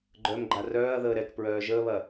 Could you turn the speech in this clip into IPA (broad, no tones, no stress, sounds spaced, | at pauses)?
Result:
ɡ͡ǃ œ m ɡ͡ǃ a r œː ɐ̯ ð əː ɾ ɛ k p ɹ œː ʒ əː β ɐ